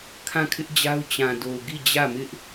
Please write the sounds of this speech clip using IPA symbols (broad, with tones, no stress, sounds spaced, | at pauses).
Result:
kʰ ã˦˨ kʰ ɪ˦ ʔ d͡ʑ a˦ ʊ̯ t͡ɕ ã˨ d o˨ ʊ̯ ɡ i˦˨ d͡ʑ ä˦˨ m ɪ˦ ʔ